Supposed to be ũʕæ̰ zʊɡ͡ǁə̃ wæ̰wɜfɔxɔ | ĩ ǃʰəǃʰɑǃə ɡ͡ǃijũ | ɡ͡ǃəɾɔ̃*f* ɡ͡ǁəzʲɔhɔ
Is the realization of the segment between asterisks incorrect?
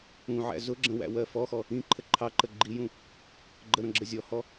yes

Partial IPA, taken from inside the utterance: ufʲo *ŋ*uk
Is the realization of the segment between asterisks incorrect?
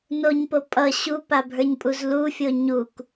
yes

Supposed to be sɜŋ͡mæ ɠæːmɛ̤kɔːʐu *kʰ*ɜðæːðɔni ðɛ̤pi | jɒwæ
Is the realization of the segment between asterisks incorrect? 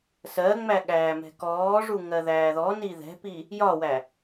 yes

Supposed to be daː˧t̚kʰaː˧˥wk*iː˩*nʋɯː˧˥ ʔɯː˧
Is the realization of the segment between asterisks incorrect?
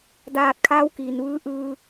no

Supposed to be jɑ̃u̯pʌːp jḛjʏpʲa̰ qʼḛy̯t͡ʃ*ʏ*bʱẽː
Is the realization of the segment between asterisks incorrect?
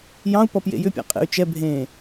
yes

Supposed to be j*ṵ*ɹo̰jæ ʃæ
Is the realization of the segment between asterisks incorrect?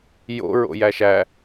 yes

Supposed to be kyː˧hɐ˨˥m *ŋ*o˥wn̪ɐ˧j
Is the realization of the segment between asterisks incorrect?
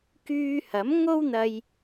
no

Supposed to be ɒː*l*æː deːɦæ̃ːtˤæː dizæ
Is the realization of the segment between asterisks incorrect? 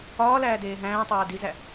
no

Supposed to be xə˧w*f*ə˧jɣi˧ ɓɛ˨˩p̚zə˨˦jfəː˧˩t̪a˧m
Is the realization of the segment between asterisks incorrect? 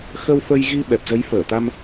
no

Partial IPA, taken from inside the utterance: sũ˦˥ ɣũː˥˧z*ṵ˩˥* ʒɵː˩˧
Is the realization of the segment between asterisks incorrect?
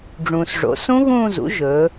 no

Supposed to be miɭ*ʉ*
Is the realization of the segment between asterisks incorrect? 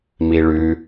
no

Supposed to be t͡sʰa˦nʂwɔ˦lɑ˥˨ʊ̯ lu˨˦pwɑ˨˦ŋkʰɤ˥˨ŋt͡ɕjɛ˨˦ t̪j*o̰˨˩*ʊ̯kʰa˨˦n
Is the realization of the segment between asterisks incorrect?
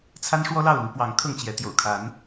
no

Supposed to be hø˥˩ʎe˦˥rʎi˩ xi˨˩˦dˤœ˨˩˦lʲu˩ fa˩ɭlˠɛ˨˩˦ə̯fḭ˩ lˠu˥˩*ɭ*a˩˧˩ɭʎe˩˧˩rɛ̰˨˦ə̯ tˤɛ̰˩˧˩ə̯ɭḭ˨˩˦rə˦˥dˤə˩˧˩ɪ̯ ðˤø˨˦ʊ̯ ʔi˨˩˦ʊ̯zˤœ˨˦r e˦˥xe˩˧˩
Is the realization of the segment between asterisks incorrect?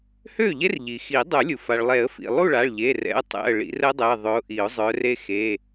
no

